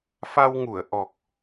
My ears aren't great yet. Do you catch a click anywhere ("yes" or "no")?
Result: no